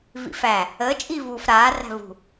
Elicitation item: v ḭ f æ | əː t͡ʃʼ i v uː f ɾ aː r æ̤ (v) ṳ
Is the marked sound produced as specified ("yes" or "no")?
yes